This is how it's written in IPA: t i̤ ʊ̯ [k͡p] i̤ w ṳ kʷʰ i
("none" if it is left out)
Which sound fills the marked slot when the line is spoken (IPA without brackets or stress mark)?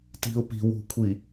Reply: p